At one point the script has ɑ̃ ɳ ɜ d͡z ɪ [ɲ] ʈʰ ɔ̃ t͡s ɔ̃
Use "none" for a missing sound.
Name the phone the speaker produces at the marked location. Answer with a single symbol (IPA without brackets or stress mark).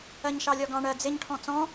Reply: ɲ